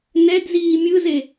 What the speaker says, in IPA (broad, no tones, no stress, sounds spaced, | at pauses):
n ɛ d z iː mʲ ɯ z e